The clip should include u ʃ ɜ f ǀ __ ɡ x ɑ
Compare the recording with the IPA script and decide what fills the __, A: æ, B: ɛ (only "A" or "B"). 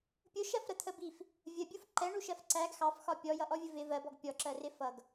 A